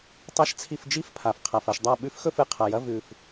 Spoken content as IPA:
tˤ a˥ ʃ t͡sʰ i˥˧ f d͡ʒ i˥ f pʰ a˨˩ f qʰ a˨˩ f ɐ˥˩ ʃ dˤ a˥˩ ɓ ʉ˥ f x ɵ˥˧ f ɨ˨˩ qʰ a˨˩ j ɐ˥˧ v ʉ˨˩ f

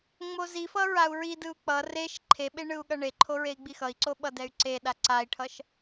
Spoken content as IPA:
ŋ͡m o z i f ʌ ɹ a u̯ ɹ i d ɯ u̯ k͡p ʌ r e ʃ ǃʰ e ɓ e ɳ ɯ u̯ ɠ ʌ ɳ e ǃʰ o ɹ e i̯ ɡ͡b i x ʌ i̯ ǀ o ɓ ʌ d ɛ y̯ ǀ e ɗ a ǀ a i̯ ʈʰ ʌ ʃ

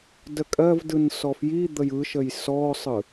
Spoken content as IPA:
d ə kʼ ɜ v d ɯ n s ɔ f j i d̪ ə j ɯ ʃ ə j s ɔ sˤ ɯ

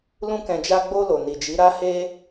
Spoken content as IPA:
l ũ˧ k ɛ̃˨ d͡ʒ a˧ ɡ͡b o˧ l o˨ n i˨ d͡ʒ i˨˦ ɾ a˦ h e˧

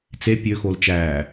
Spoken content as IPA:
t͡s e pʲ ø x o l t͡ʃ æː

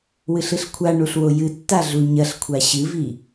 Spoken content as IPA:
w ɨ ɬ ɨ ɬ kʷʰ a ɳ u ɬ w o j ɨ tː a ɮ u ɲ ɐ ɬ kʷʰ a ɕ ɨ v i

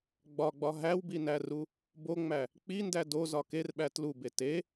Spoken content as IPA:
ɡ͡b ɒ ɡ͡b ɒ ɦ æ w b i n æ r u | b o ŋ͡m æ | k͡p i n d æ d o z ɒ k e r ɓ æ t l u b e t e

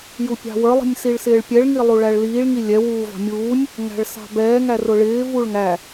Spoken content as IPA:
j u pʲ ɑ̤ w ə˞ lˠ i̤ nʲ s i ɭ s ɪː ɭ pʲ ɛ ɭ ŋ i lˠ u ɭ æ ɭ l iː ɭ ŋ i lʲ ɛ w uː v ɑ̤ mʲ uː nʲ | ŋ æ̤ ɭ s ɑ̤ b ɛː ŋ æ r ʊ ɭ ɪː v u ɭ ŋ æ

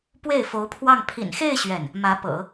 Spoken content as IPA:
p w e˥˩ ɪ̯ f o˧˥ ʊ̯ pʰ w ɑ˥˩ ŋ pʰ ḭ˨˩ n x e˥˧ ɪ̯ ɕ ɥ ɛ˥˩ n | m ä˧˥ p ɤ̰˨˩˦

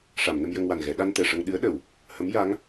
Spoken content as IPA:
ʂ a˨˩˨ m n ə˧ m j ə˧ ŋ w a˨˩ n ɣ ɛ˨˩˦ ɗ a˧ n t̪ ɛ˨˩ ʂ ə˧ ŋ ɗ ɨ˧˥ ə̯ ɗ ə˨˩˨ w | h ə˧˥ m j a˧˥ ŋ

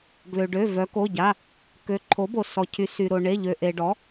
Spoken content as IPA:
ɡ l ø˩ ɖ ø˩˧˩ v œ˩˧ k o˩˧˩ ɟ a˩˧˩ | k ø˩˥ ǃʰ o˩˥ b o˩ s ɔ˩ cʰ y˩˧ s y˩ ɾ o˩ ɳ e˩˧˩ ʎ ø˩ ʔ e˩ ɖ ɔ˩˥

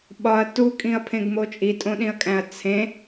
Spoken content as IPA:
ɓ ɒ ɐ̯ t u kʼ ĩ ɐ̯ pʰ ẽ ɡ m o t͡ʃʼ i tʼ õ ɗ ĩ ɐ̯ kʼ æ̃ ɐ̯ t͡sʰ ẽ

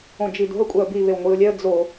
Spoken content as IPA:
õ d͡ʒ i d o̤ ə̯ kʷʼ ɛ ə̯ b i β e w ŋʷ i ʊ̯ lʲ ɛ ə̯ d͡z o

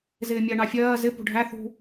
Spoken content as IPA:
z ɪː mʲ ɜ ɳ ɑ fʲ ɜː z ɪ p ṳ ɖʱ æ θ ṳ

